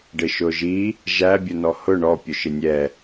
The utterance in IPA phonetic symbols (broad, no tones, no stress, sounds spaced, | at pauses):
ɖ ɪ ʃ ʊ ʒ i | ʒ æ bʲ ʊ n ɔ h ʊ ɳ ɔ pʲ ʊ ʃ ɪ nʲ ɛ